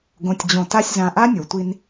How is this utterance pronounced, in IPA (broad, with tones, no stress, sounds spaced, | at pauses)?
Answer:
ɡ õ˨ tʲ d͡ʑ õ˨ t a˧ sʲ z ã˨ ʔ a˦ nʲ o˨ tʷ i˦ n